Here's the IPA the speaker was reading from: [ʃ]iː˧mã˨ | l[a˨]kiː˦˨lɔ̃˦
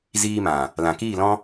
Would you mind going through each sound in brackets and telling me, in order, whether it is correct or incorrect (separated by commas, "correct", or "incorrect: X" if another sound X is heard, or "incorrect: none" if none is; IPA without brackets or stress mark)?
incorrect: z, incorrect: ã˨